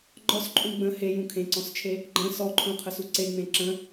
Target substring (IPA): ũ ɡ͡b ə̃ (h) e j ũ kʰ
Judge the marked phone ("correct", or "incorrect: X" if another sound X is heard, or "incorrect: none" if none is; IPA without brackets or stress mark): correct